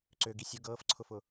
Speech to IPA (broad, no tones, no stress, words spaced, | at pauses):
ǀøɡi sʲʊ ɡɤːfǀʰʊfʊ